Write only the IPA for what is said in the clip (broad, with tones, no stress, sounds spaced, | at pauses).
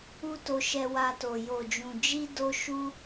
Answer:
u˦ t o˧ ʃ ɛ˧ w a˧ t o˨ j o˨ d͡ʒ ũ˨ d͡ʒ i˧ d o˦ ʃ u˦